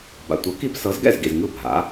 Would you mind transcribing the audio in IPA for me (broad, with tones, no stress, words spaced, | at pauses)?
ba̰˩tʷɤ˩˥ki˧b sɤ˩˥z ɡɛ̰˥˩zɡḭ˩z ŋɯ˥˩bʱa̰˩˥